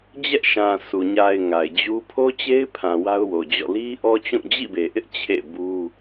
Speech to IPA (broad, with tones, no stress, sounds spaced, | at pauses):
d͡ʑ ɛ˦ ʔ ʃ ã˨ s u˨ ɲ a˨ ɪ̯ ŋ a˨ ɪ̯ d͡ʑ u˦ pʰ o˦ t͡ɕ e˦ ɪ̯ pʰ ã˨ w a˦ ʊ̯ w o˨ d͡ʑ ɔ̰˦˨ l i˦ ʔ ɔ˦ t͡ɕ ũ˦˨ d͡ʑ ḭ˦˨ b e˨ ʔ ɪ˦ ʔ t͡ɕʰ ḛ˦˨ b u˦